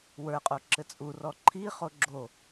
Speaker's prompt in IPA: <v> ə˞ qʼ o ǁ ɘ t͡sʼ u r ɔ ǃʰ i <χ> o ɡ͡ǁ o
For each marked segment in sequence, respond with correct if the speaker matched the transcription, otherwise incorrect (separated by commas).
incorrect, correct